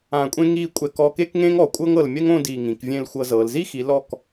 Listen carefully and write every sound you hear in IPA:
ã˧˩ kʷʼ ẽ˥ ŋ i˥˧ kʷʼ ɛ˧˩ k ɔ˧ k e˥ k ŋ ẽ˥ ŋ ɔ˩˧ kʷʼ ɤ˥ ŋ ɤ˧˩ l mʲ ɛ˥ ŋ õ˥˧ d i˧˩ ŋ ĩ˩˧ k vʲ ẽ˥˧ l xʷ ɤ˧ z ɤ˩˧ l z i˥ x i˩˧ l ɔ˧˩ k

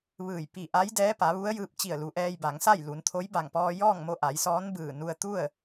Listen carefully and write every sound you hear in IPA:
ʋ ɯː˧˩ j p i˧˩ ʔ a˧˥ j d ɛː˧˥ p a˩˧ ʋ u˧˥ ə̯ j ɯː˧ p̚ t͡ɕ i˧˩ ə̯ l u˩˧ ʔ ɛː˧ j b a˩˧ ŋ s a˥˨ j l u˩˧ n t̪ʰ o˧˥ j b a˧˩ ŋ p ɔː˧ j ɔː˥˨ ŋ m o˧ ʔ a˩˧ j s ɔː˧˥ n b ɯː˧˩ n u˧ ə̯ t̪ u˥˨ ə̯

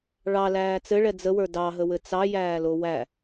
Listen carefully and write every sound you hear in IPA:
ɭ ɑ l æː t͡s ɘ ɭ ɛ d͡z ə w ə˞ d ɑ ɦ ə w ɘ t͡s ɑ j æː l o w æ

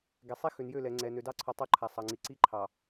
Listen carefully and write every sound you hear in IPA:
ɡ ɛ˨ sˤ i˦ x ø˨ n j ø˦˨ l ɛ˨ ŋ͡ǀ ɛ˨ n ø˨ d ɑ˦ ǀʰ ɔ˨ tˤ ə˞˦ ǃʰ a˨ sˤ ɑ˨ ŋ͡ǀ i˨ ǀ i˦ ǃʰ ɑ˨

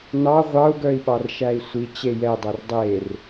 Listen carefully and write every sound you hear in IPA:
n ɑ ʁʷ ɑ u̯ ɡ œ i̯ ɓ ɑ r ʃ æ i̯ sʷ i t͡ɕ e j ɛ dˤ ɛ r dˤ e r

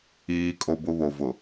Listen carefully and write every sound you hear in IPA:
iː˦ kʼ o˦ b ʊ˦ β o˨ v ʊ˨

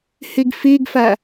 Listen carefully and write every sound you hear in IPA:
h i ɡ f i ɡ f æ

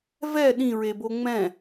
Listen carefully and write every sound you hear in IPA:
v ɛ ɗ ĩ ɹ e b o ŋ͡m ɛ̃

